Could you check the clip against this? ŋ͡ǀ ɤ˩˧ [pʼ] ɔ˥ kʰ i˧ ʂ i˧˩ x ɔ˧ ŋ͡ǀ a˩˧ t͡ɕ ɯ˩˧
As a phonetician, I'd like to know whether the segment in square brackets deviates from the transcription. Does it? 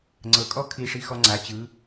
yes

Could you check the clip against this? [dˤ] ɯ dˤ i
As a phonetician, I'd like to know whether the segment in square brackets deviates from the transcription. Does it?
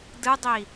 yes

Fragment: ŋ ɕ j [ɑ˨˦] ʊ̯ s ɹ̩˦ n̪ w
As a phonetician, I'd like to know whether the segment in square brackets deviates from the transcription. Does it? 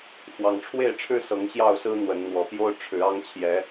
yes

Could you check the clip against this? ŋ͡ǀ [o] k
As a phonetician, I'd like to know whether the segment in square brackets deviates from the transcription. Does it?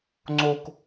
no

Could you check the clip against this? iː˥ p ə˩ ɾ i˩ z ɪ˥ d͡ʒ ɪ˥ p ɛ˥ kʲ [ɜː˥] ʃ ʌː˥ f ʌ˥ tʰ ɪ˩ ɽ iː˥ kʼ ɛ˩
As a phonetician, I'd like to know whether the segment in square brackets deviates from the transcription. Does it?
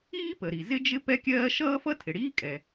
no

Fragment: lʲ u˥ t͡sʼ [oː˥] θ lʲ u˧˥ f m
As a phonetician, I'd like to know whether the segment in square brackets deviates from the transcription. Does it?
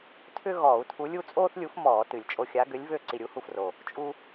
no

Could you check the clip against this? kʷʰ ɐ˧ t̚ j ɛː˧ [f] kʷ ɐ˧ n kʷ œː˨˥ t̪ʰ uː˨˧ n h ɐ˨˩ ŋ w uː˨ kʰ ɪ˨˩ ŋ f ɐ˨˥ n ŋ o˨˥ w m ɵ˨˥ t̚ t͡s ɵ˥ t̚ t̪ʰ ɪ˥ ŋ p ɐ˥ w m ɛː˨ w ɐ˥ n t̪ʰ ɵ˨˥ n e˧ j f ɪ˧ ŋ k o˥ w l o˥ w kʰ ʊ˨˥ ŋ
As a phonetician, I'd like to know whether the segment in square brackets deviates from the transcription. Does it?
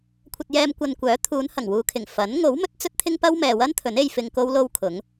yes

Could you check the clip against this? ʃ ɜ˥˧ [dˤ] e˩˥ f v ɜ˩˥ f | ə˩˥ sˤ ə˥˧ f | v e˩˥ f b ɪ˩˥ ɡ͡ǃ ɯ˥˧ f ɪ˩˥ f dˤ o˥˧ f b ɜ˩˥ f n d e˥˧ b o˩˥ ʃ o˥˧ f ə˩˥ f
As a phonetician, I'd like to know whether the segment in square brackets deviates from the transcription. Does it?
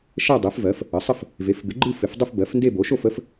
no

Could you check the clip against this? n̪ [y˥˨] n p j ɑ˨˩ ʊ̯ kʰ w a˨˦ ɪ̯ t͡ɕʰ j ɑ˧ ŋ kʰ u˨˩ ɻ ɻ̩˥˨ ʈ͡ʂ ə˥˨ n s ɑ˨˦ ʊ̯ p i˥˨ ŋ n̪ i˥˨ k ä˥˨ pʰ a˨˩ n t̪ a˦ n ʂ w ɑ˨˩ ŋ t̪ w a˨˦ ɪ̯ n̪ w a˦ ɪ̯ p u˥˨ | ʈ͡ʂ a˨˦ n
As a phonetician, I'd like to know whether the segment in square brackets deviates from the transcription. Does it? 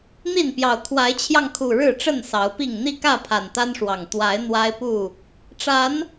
yes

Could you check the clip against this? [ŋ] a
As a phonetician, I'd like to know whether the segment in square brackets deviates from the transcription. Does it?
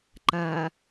yes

